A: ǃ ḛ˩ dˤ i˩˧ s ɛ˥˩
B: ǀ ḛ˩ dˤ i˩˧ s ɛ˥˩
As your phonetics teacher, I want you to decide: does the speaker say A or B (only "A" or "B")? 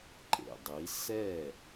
A